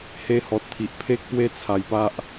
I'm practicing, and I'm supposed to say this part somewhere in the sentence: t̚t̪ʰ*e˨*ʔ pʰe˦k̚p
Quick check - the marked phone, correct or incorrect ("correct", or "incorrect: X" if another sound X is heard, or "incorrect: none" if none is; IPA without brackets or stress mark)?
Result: incorrect: i˨